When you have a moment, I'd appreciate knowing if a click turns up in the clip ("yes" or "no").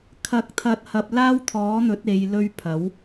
no